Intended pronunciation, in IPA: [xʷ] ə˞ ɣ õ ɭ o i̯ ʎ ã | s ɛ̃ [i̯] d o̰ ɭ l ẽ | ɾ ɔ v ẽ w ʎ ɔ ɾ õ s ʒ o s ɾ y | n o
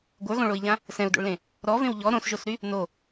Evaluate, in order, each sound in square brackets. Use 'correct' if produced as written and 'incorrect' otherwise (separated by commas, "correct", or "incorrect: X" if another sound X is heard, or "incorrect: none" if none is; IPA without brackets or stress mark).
incorrect: ɡʷ, incorrect: u̯